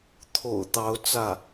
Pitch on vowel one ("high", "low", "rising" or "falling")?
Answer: low